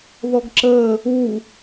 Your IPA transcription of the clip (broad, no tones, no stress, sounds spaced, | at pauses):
ð ɔ ɡ ǁ əː | u